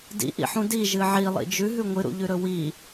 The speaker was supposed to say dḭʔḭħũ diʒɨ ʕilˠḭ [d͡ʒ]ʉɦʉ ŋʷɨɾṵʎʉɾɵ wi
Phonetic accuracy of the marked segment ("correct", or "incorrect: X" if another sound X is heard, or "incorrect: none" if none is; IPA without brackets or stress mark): correct